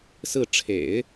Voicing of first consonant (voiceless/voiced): voiceless